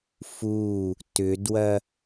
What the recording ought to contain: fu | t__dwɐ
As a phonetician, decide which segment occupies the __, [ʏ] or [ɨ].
ʏ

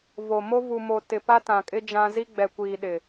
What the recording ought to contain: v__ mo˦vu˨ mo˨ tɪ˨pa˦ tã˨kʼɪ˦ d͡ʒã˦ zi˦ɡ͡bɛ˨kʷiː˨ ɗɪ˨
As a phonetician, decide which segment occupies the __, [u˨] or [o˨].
o˨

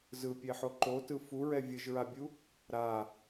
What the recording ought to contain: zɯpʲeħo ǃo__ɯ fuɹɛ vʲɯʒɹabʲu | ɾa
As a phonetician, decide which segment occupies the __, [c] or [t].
t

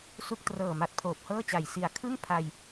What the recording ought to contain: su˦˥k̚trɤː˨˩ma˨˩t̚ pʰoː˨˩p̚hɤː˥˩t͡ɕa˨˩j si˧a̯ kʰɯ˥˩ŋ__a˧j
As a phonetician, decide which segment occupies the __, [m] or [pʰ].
pʰ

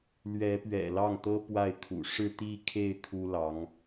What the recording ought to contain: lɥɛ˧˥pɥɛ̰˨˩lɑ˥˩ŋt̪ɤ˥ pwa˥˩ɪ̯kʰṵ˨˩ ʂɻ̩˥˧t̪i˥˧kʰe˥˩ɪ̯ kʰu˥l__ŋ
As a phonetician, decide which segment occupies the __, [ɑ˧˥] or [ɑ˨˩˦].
ɑ˧˥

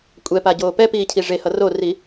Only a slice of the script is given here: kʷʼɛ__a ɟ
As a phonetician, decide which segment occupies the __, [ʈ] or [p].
p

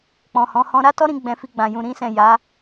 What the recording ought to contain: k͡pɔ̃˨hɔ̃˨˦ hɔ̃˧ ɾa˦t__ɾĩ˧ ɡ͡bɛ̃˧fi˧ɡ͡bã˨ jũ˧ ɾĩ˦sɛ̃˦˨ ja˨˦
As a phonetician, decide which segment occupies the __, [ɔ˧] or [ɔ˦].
ɔ˦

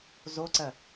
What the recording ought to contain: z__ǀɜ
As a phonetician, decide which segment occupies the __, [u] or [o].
o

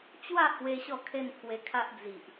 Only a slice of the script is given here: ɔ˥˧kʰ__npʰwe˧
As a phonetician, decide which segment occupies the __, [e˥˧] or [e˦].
e˥˧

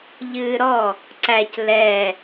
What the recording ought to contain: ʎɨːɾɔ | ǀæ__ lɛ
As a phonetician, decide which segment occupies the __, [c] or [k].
c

